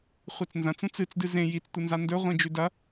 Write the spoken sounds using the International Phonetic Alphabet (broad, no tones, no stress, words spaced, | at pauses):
χʷet͡snzɐ̃t͡s ũt͡sɨt͡sdɨ zẽ jit͡stʷɨnza ndɵ ʁʷĩd͡ʒʉdɐ